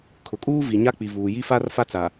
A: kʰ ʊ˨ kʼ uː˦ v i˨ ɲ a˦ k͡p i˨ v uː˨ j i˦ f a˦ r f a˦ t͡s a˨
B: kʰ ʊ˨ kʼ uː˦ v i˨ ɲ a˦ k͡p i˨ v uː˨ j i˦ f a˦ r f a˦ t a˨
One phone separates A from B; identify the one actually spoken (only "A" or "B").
A